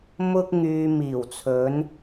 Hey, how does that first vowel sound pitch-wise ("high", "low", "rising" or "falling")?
high